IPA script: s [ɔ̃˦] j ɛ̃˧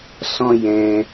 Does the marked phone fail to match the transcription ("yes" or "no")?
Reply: no